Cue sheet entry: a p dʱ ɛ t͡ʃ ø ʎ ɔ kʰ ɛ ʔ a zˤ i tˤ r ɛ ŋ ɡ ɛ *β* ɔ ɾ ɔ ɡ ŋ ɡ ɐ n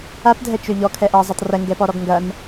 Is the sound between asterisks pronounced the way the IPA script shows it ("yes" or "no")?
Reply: no